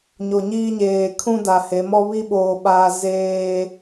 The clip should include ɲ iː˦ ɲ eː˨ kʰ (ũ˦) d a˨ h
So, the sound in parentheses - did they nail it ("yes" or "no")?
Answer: yes